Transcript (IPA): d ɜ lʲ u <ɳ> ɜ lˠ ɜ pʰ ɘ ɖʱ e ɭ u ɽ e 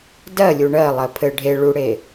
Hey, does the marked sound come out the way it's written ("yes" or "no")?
yes